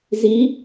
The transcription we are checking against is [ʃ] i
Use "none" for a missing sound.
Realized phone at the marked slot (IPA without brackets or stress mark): z